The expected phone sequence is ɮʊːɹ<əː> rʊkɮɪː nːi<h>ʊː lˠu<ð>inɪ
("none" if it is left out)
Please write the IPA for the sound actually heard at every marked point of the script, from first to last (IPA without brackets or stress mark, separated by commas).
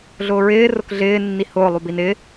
ɪː, h, b